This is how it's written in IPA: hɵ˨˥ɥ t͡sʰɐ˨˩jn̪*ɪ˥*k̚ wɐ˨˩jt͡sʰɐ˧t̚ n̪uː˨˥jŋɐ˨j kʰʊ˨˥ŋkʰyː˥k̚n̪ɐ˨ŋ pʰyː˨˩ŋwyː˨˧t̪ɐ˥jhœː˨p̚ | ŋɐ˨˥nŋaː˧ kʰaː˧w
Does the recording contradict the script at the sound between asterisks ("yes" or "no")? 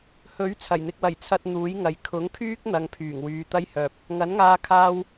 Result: yes